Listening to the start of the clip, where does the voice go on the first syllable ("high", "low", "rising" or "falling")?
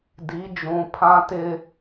rising